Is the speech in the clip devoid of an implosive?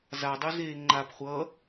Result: yes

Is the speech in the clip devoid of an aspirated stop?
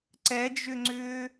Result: yes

